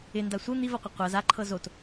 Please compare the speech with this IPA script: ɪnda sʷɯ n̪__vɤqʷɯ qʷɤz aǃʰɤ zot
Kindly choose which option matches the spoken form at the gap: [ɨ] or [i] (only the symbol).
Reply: i